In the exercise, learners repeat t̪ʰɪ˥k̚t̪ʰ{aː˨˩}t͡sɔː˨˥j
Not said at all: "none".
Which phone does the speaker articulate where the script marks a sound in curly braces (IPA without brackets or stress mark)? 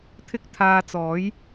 aː˧